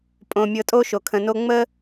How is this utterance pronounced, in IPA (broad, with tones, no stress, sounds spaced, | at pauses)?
pʼ õ˨ mʲ ɤ˨ tʼ o˦ ʃ o˨ kʰ ə̃˨ n o˦ ŋ͡m ə˦